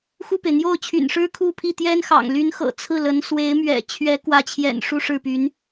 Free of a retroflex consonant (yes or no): no